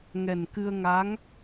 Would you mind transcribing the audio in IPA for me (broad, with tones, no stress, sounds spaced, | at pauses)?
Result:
ŋ ɛ˨˩ n k ɨ˧ ə̯ ŋ a˧˥ ŋ